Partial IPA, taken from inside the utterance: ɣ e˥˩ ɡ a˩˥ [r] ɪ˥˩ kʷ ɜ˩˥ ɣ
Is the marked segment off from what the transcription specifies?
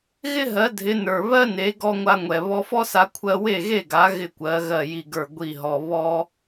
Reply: yes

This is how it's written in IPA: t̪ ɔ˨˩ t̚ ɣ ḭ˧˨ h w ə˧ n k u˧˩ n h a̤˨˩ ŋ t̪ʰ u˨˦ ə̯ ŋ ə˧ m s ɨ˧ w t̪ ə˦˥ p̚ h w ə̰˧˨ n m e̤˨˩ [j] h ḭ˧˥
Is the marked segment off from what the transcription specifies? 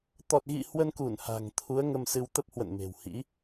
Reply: yes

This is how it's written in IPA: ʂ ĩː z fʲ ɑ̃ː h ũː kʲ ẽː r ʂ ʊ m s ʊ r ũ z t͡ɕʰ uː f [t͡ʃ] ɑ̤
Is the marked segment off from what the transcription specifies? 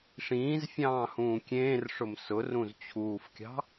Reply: yes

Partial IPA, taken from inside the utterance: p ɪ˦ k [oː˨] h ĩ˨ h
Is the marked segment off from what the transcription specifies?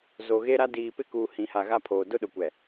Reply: yes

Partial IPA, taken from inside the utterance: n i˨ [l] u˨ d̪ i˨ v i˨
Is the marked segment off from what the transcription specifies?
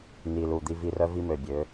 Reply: no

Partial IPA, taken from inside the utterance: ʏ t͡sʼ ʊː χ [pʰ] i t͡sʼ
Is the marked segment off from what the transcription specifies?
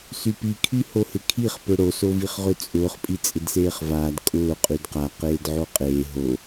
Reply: yes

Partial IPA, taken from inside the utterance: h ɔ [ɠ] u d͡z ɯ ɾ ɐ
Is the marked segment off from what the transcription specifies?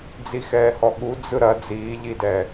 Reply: no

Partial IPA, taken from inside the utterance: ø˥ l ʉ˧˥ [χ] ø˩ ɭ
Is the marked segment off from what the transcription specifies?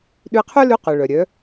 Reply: yes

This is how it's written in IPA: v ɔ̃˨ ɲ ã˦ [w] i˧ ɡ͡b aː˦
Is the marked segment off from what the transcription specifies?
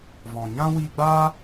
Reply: no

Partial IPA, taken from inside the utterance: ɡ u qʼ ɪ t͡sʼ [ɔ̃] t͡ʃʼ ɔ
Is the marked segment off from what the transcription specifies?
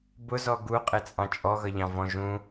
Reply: yes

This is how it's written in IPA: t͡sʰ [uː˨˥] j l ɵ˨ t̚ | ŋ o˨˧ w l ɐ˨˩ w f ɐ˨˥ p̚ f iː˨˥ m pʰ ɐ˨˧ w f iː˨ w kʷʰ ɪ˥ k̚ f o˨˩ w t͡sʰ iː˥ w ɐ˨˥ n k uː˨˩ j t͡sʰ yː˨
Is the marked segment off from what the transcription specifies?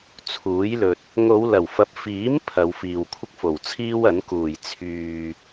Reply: no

